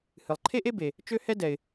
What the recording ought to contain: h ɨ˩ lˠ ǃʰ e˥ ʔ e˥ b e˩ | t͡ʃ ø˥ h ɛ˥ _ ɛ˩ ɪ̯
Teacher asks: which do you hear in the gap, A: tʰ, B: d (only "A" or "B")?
B